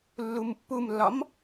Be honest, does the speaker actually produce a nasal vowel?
no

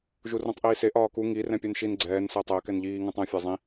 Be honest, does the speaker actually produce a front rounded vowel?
no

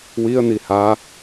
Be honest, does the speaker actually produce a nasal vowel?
no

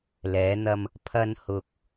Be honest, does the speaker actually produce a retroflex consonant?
no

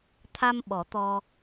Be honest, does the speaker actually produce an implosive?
yes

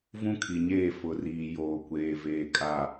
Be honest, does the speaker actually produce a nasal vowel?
yes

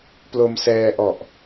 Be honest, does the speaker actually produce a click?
no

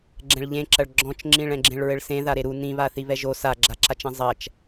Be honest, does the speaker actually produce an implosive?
no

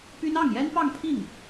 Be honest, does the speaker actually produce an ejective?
no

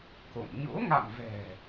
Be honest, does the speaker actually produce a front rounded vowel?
no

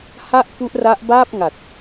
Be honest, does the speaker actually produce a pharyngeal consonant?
no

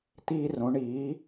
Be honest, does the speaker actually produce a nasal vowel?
yes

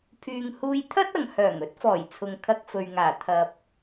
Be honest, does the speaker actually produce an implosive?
no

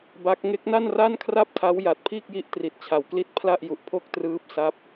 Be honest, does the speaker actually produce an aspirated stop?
yes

